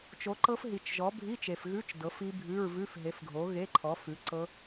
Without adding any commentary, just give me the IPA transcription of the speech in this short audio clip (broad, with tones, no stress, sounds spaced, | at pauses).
t͡ʃ o˨˥ ǃ ɤ˦˥ f ɦ i˨ t͡ʃ ʒ ɔ˨˥ bʱ i˧˥˧ t͡ʃ e˨ f ɣ ʉ˧˥˧ t͡ʃ d ɤ˨˥ f i˦˥ bʱ ʉ˧˥˧ ɹ v ʉ˧˥˧ f ɦ e˨˥ f ɡʱ o˨˥ ɣ e˧˥˧ ǃʰ ɔ˨˥ f ʉ˨˥ ǀ ɤ˦˥